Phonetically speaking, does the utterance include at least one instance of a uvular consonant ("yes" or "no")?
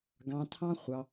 yes